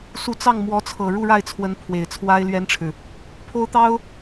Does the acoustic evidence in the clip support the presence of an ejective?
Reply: no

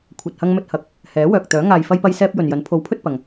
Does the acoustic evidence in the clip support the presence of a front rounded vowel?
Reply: yes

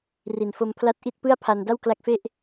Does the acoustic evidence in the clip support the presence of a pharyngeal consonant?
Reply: no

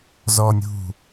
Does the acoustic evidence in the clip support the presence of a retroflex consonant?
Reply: no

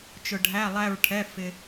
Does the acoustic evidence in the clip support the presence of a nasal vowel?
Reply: no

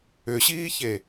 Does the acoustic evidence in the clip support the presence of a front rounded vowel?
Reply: yes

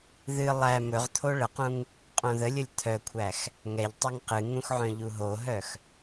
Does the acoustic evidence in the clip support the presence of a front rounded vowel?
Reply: yes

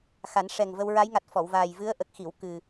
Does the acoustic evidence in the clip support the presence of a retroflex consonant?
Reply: yes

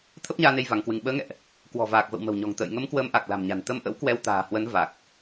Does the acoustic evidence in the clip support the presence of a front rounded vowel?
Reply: no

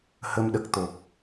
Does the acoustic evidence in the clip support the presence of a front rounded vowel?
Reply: no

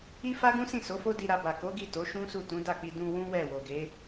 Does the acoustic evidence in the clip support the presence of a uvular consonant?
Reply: no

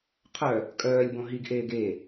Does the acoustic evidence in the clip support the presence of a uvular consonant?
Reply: yes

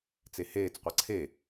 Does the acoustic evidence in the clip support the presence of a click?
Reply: yes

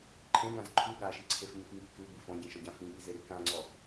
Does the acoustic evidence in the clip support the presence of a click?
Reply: yes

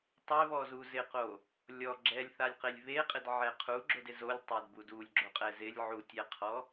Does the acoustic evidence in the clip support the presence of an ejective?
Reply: yes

